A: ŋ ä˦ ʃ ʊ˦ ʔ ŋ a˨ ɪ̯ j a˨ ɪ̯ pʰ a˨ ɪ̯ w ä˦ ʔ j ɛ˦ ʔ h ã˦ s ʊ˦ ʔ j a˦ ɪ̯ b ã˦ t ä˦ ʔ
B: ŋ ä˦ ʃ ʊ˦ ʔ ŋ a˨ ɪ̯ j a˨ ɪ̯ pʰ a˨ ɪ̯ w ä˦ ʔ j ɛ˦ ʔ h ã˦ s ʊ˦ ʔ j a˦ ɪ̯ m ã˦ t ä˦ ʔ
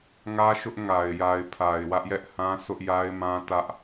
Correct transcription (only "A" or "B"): B